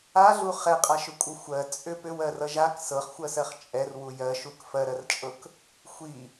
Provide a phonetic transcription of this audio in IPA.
aɮu χɛqʼaʃʏkʷʼʌ xʷɜ t͡sʼʏ pʏwɜrʌ ʒak sɤχxʷɜsɜχ t͡ʃʼɛrwu jɜʃuk fɜɾɜrt͡ʃʼɤk | xʷi

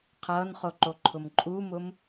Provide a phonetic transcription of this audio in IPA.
qʰʌːnχoǃoǃʰʊm ǃʼumʊm

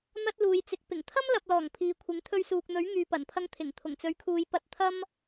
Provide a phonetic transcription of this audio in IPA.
n̪ɐ˥t̚luː˨˧jt͡sɪ˨˥k̚ pɪ˨˩ŋt̪ʰɐ˥m lɐ˨p̚lɔː˨˩ŋ pʰiː˨kʷʰɪ˨˥ŋ t̪ʰɵ˧ɥsuː˨k̚n̪ɵ˨˥ɥ ŋyː˨pɐ˨˩npʰɐ˧ŋ t̪ʰɪ˨˩ŋ t̪ʰʊ˨˩ŋt͡sɵ˨˥ɥkʰuː˨˧j pɐ˧t̚ t̪ʰɐ˥m

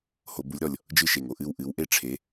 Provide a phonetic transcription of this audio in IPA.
ho˧˩˧bu˩˥lʲɾɔ˩lʲ | d͡ʒɨ˥˨ʃe˩ŋo˩ ʔɨ˥˨wʔɨ˩˥wʔe˥ʈ͡ʂʰe˩˥

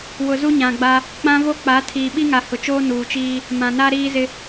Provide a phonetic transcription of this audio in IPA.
wʊ˨zu˦ɲã˨ɡ͡ba˦ | k͡pã˦vo˦k͡pa˨˦ tʰiː˨ɓi˦ŋa˨ hʊ˨t͡ʃoː˦ nuː˨t͡ʃiː˦ | mã˨na˦ ɾiː˦zɪ˦

